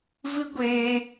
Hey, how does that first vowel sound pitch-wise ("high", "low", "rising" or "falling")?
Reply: high